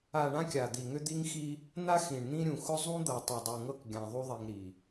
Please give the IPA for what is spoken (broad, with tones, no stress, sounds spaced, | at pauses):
a˨ ɳ ã˦ kʲ a˨ d̪ i˨ ŋ ʏ˦ d̪ i˦ ŋ x i˦ | n̪ a˦ x ĩ˨ ɳ n̪ ĩ˦ ɾʲ ũ˨ x ʊ˦ zˤ ũ˦ d̪ ɤ˨ tˤ i˨ dˤ u˨ ŋ ɤ˦ k ɡʲ ã˨ ðˤ u˦ ðˤ i˨ ŋ ɾ i˨